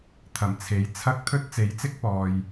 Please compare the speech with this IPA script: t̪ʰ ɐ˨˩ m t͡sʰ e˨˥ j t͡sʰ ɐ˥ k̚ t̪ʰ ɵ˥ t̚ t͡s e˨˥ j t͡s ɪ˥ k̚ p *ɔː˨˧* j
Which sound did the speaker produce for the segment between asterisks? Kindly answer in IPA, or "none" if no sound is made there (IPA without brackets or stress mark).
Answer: ɔː˨